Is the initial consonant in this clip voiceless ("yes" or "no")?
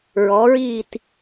no